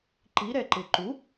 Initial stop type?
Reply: click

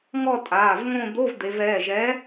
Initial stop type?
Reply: ejective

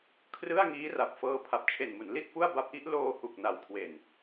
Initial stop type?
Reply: aspirated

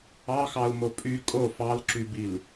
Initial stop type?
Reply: ejective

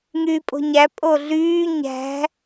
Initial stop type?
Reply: ejective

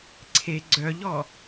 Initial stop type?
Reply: click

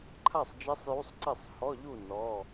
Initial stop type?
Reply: click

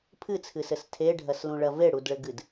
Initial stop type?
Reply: aspirated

